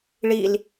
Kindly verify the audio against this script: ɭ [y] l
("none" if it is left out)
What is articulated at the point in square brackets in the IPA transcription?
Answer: i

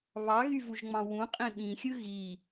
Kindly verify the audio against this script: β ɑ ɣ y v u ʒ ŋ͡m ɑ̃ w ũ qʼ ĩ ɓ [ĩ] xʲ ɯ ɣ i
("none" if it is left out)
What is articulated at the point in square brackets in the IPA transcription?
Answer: ĩ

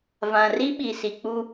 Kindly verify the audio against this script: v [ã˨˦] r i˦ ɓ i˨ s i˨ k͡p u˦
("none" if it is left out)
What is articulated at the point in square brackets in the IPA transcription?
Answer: ã˨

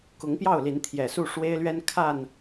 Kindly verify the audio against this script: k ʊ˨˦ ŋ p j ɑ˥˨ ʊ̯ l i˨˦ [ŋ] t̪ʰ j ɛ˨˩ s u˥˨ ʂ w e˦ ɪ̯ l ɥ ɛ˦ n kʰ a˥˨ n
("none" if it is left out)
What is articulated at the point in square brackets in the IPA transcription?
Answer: n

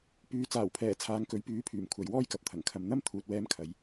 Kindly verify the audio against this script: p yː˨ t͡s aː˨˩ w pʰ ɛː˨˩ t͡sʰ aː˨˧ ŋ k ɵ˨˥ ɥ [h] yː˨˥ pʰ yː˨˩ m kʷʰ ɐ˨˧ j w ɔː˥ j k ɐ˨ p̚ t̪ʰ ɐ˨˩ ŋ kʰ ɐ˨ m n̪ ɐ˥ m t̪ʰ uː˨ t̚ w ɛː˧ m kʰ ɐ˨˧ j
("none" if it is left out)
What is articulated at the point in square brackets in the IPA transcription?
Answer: p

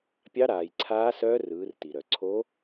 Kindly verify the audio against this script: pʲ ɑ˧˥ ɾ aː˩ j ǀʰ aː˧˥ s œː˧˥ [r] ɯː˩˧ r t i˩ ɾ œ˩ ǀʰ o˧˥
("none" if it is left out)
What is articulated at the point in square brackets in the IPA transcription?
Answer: r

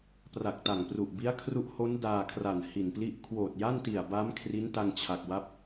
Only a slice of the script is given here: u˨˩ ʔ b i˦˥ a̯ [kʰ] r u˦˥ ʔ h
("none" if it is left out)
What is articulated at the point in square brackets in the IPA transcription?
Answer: kʰ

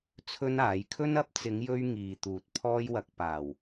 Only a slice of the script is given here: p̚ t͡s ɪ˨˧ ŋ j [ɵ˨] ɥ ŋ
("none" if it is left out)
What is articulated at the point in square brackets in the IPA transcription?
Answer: ɵ˧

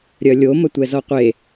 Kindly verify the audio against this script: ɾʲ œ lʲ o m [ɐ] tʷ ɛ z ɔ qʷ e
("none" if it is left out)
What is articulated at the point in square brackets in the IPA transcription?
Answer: ɐ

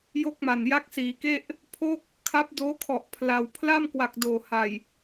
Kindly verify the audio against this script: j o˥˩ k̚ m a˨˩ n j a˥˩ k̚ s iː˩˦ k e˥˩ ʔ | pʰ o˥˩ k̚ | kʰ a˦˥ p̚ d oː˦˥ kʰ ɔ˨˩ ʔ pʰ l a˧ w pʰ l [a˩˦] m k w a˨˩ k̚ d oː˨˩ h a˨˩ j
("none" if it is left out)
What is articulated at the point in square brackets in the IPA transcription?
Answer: a˥˩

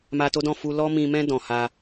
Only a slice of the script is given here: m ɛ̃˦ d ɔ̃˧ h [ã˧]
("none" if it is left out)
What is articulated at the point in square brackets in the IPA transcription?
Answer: a˧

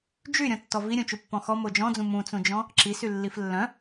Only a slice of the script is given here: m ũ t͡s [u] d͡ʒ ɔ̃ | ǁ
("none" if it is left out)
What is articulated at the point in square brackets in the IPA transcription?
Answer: ũ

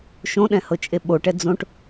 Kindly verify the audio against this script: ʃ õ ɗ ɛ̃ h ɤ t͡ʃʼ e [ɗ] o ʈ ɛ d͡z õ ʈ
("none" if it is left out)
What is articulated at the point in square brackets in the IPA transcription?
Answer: ɓ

